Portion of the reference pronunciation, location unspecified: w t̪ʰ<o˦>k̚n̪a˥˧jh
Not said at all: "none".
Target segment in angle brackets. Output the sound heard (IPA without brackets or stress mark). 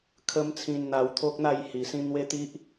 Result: o˦